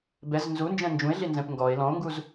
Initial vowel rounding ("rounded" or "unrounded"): unrounded